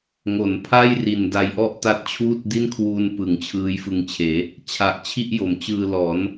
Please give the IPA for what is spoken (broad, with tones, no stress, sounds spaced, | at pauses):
ŋ o˩˦ n pʰ a˥˩ j r i˨˩ n d a˧ j ʔ ɔ˥˩ ʔ t a˦˥ t̚ t͡ɕʰ uː˥˩ t̚ d i˥˩ n kʰ w uː˧ n p ɯ˩˦ ŋ t͡ɕʰ ɯː˦˥ j f ɯ˧ ŋ t͡ɕʰ eː˩˦ | t͡ɕʰ a˨˩ ʔ t͡ɕʰ i˥˩ ʔ j o˩˦ m t͡ɕ ɯː˧ l ɔː˩˦ n